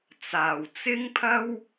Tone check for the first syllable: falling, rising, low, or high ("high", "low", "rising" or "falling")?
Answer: low